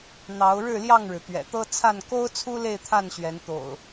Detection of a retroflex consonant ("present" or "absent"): present